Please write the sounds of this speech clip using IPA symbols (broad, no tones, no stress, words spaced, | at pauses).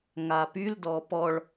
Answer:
ŋapyl dɔpɔɭ